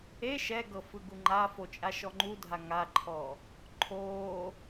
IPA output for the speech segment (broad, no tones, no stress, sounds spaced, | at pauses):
e ʃ ɛ ɡ ɤ f ɯ ɡ u ŋ͡ǃ a f o t͡ʃʼ a ʃ ɔ ŋ͡ǃ u dʱ a ŋ a ǃʰ ɔ | ǃʰ oː